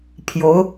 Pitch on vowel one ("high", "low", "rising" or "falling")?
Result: rising